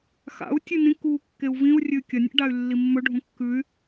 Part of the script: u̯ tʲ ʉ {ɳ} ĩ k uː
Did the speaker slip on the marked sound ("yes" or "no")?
yes